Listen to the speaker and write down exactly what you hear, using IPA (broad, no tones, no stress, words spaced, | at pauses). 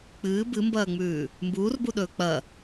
k͡pɨː bɨmbɐːŋ͡mʉː | mbuːrbuɗɵː k͡pɐ